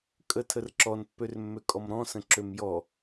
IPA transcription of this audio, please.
kʼ ə tʰ ə r ǁ ɔ n pː ø r mː ø kʼ ɔ m ɾ ɔ̃ s ə̃ ǁ ø m j ɔ

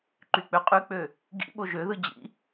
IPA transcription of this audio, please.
ǃ y k͡p ø qʼ y k͡p ø | ɡ ḭ ɓ o ʒ ø ð ɯ d͡ʑ ḭ

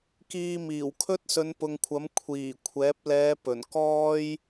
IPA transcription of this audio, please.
k iː˧ m iː˨˩ w kʰ ɵ˥ t̚ s ɵ˨˧ n p ʊ˨ ŋ kʷʰ ɐ˨˥ m kʷʰ iː˨˩ kʷʰ ɛː˨˥ p̚ l ɛː˨˧ p ɵ˨˩ n k ɔː˥ j

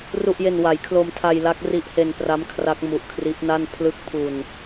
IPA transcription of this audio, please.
r u˨˩ ʔ j e˨˩ n w a˩˦ j kʰ l o˧ m tʰ a˧ j l a˦˥ k̚ r i˦˥ ʔ h e˧ n p r a˦˥ m kʰ r a˦˥ k̚ m u˨˩ ʔ kʰ r i˦˥ ʔ n a˥˩ n pʰ l ɯ˦˥ k̚ pʰ u˧ n

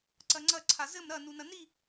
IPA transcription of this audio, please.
ǀ ɐ ŋ͡ǀ ɐ ǀʰ a z ɘ m ɾ ɐ n u n ɐ n i

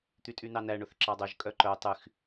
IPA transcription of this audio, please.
t̪ y tʼ y n ɑ n æ ɳ ɵ θ ǁ ɑ dˤ ɵ ʒ kʼ œ ǃ œ tˤ y x

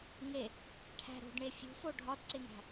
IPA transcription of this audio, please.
ŋ e | ʈʰ æ̤ ɾ o̤ d ɳ e fʲ ṳ f o ɖʱ ɒ d ǀ e ŋ æ̤

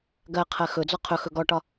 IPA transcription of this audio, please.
ɡ ɜ qʰ ɜ x ɵ d͡z ɔ qʰ ɵ x ɵ ɡ ɔ ʈ ɒ

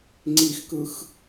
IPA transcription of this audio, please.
ŋ͡ǀ i x k ɯ x

